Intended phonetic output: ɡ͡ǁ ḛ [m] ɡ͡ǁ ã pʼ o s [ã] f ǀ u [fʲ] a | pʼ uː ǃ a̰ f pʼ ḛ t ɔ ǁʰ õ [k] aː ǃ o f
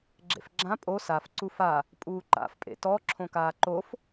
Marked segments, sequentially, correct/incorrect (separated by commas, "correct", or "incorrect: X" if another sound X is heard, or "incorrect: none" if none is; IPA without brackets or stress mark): incorrect: f, incorrect: a, incorrect: f, correct